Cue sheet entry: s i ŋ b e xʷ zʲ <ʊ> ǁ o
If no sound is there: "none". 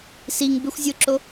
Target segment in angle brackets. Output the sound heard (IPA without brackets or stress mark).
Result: ʊ